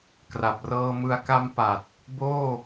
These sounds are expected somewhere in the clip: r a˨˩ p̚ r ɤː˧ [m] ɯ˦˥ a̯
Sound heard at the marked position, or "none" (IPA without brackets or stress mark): m